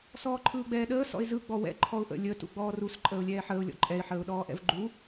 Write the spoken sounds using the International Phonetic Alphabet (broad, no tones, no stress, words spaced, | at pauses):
sɔːǃʰɯːɡ͡bɛːɗəː sɔ̰ɪ̯zɯ ɡ͡bɔwɛ̰ ǃʰɔʊ̯ʔə̰ lʲə tṵɡ͡bɔːrus ǃʼəːʊ̯lʲɛːħəːʊ̯ lʲɔ̰ǃʼɛɪ̯ ħəːʊ̯ɗɔːʔɛ̰vɡ͡ǃu